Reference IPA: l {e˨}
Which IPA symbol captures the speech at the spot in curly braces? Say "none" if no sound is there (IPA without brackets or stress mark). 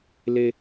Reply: e˨